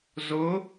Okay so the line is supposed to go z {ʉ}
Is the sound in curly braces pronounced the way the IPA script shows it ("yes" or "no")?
no